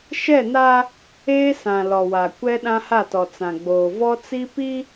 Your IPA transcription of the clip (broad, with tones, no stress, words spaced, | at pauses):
ʃɛ˦˨na˦ | eː˦sã˨ lɔ˨wa˨ kʷɛ˦ɗã˦ha˦˨tɔ˨ t͡sã˨ɡ͡boː˨ vɔ˦t͡si˦pi˦